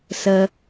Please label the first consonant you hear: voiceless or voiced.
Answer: voiceless